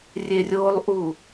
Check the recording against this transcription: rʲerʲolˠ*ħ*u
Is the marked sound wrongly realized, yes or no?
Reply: yes